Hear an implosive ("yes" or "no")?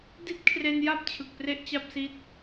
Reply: no